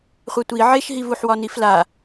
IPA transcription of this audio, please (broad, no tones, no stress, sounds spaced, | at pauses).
χʷ ɛ tʷ i ʕ e ʃ ɦ i v u ħ w ɒ n i f l a